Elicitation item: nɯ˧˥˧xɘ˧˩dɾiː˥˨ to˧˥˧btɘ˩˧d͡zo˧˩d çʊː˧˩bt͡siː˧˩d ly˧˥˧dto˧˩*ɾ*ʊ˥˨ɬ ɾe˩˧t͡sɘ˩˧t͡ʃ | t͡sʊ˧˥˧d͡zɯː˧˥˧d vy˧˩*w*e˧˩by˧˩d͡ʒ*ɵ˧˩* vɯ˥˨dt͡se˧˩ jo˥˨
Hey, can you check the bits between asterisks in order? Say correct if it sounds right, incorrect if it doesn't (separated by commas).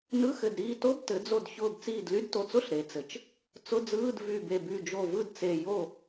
incorrect, incorrect, incorrect